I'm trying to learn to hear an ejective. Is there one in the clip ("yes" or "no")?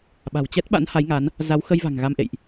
no